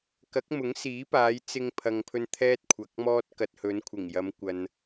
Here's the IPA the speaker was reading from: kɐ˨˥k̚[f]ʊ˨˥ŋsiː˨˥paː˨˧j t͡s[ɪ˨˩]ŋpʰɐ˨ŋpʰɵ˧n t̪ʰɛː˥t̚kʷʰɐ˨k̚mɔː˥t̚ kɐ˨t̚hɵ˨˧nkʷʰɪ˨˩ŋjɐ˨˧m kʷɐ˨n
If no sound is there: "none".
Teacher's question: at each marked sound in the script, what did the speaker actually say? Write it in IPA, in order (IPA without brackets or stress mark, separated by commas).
m, ɪ˧